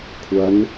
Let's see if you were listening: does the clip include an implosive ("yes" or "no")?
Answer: no